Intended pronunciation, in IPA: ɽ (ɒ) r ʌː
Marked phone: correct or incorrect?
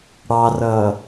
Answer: incorrect